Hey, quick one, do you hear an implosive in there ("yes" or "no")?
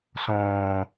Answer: no